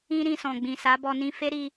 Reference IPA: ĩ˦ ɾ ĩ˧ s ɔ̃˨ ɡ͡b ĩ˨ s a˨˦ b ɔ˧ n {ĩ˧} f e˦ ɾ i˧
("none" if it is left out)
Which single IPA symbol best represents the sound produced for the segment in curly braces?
ĩ˧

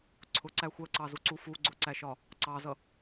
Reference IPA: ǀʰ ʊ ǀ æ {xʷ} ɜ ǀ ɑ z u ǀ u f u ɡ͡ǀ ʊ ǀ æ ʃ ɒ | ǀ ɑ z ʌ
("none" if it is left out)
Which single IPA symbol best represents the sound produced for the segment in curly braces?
xʷ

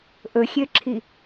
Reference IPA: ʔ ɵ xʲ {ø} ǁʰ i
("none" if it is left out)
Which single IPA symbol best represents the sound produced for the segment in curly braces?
ø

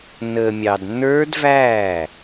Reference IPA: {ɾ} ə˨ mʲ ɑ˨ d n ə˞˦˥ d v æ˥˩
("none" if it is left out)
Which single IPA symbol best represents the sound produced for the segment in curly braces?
n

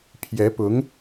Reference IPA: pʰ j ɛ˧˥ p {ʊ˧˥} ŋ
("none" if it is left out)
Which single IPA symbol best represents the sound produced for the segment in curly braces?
ʊ˧˥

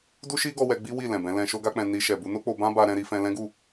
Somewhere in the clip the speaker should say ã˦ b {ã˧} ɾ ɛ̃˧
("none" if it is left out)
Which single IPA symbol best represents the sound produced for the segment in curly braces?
a˧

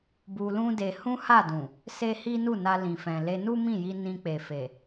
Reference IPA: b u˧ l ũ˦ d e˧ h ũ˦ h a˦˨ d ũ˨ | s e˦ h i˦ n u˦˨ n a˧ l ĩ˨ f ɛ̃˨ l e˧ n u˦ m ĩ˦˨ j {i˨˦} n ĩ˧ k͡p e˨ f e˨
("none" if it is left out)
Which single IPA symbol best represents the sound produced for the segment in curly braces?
i˧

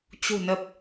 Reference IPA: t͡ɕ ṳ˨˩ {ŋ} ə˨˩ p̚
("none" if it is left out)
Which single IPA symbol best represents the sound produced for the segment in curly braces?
n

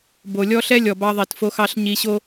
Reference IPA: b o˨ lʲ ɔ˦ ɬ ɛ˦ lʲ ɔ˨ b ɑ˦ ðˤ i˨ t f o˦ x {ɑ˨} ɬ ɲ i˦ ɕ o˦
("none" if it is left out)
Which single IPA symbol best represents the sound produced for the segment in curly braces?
ɑ˦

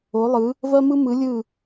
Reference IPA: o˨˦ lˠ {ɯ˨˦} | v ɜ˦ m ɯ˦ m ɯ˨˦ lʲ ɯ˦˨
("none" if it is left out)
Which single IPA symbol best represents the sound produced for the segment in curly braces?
ɯ˨˦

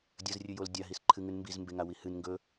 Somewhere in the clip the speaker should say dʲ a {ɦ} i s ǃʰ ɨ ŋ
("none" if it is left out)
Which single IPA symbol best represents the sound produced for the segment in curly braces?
ɦ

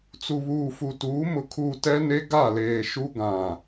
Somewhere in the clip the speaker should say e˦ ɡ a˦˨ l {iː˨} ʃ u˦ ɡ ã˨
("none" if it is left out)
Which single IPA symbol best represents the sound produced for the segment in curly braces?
eː˨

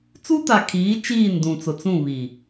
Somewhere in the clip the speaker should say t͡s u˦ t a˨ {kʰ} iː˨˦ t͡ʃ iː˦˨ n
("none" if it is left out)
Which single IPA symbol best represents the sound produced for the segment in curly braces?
kʰ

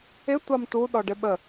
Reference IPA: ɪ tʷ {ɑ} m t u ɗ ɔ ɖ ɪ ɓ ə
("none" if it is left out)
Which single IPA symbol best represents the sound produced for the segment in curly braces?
ɑ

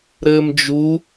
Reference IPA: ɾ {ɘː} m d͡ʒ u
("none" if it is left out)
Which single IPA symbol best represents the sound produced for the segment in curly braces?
ɘː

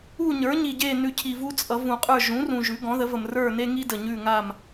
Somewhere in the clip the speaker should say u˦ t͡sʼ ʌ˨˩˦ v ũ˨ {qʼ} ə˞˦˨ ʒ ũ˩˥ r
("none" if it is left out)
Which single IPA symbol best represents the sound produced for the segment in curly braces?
qʼ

